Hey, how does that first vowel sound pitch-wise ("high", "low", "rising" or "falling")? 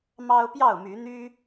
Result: high